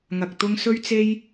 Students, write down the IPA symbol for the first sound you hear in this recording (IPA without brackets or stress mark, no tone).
ŋ